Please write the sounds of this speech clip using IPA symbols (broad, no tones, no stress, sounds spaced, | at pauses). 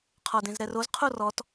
qʰ ɔ d ẽ z ɾ ɛ r o z qʰ o r ɔ t